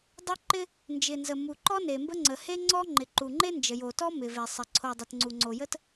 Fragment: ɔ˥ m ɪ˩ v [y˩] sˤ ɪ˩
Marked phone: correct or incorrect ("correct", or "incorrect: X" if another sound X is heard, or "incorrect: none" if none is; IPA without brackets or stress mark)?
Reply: incorrect: e˩